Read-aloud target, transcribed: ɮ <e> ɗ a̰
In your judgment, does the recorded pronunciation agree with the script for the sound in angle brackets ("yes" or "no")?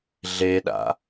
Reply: yes